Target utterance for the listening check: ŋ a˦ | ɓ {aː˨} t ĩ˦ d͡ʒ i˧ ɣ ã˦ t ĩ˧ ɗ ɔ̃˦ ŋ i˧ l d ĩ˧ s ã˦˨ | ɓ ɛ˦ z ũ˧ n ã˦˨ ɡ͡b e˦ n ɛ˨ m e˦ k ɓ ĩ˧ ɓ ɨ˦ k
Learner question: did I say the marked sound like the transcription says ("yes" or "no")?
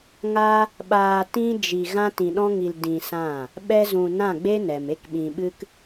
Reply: no